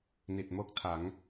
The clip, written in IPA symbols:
ni˨˩t̚mo˥˩k̚tʰa˩˦ŋ

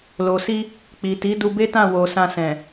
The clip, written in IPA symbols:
lo˨si˧ | k͡pi˨ti˨˦ du˧be˦tã˦˨wo˨ sã˧sɛ̃˨

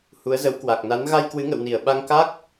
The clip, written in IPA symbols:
hu˨˦ə̯zə˨˦w kwa˨˩k̚na˨˦n ɣa˧jkwɨ˨˦ŋə̰˧˨wni˧˩ə̯ ɓa˧ŋka˦˥k̚

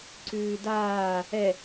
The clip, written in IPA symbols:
ǀʉːdaː | ɛ

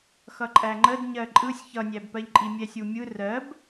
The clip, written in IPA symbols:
xʌǃʼæŋ͡ǃəd ɲɜǃʼɯsʲ çʌnʲæbpɜʎǃʼi mʲɛsʲumʲɯ rɜb

